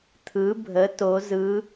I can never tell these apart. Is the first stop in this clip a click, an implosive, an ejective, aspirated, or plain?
aspirated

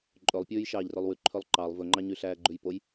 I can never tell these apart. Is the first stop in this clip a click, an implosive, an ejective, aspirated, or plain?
click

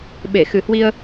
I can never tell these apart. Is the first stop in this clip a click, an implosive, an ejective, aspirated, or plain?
implosive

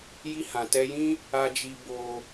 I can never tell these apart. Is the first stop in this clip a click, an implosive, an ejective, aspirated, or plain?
plain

